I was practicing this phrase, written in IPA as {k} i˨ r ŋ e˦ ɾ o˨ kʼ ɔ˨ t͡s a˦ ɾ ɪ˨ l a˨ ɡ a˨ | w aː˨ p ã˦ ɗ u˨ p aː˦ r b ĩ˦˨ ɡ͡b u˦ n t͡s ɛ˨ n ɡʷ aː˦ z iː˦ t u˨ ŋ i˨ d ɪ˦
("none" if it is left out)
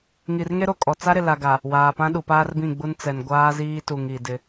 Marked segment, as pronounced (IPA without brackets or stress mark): ŋ